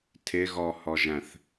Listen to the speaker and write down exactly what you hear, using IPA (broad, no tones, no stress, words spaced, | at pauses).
tʰɪɣɔhɔʒæ̃θ